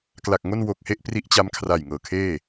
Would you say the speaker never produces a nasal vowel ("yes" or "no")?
yes